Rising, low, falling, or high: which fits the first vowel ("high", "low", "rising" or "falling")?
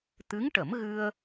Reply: rising